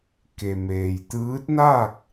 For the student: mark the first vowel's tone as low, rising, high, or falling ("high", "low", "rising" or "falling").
low